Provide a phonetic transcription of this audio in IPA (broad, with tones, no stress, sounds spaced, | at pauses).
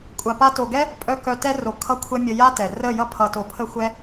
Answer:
kʷʼ a˨ p a˧ t o˨ ɡ ɛ˦ | pʼ œ˧ k œ˨ t ɛ˧ r o˨ kʰ ʌ˧ kʷʰ ɛ˧ mʲ ə˧ j a˦ t ɛ˨ r ə˦˨ j ʌ˦ pʰ ʌ˧ t o˧ pʰ ə˦ xʷ ɛ˦